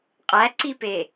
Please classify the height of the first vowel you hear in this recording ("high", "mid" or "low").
low